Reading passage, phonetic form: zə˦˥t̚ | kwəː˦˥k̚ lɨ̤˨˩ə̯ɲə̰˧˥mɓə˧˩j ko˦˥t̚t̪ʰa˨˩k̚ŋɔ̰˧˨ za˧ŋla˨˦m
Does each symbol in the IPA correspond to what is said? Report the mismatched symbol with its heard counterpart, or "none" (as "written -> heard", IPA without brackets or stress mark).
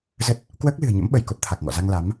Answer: none